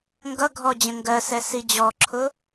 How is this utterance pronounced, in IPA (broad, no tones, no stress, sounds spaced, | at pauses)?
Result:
ŋ ɡ ʌ ɡʱ ɔ d͡ʑ ə̃ ŋ ɡ ɜ s ɛ s i d͡ʑ ɔ ǁʰ ʊ